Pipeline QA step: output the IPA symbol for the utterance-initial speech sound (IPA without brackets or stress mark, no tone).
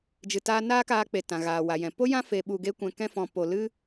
d͡ʒ